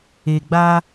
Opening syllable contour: low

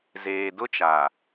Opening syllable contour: low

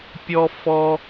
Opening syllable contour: high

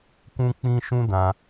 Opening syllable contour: high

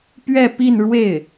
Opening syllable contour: falling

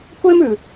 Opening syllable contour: high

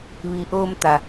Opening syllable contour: low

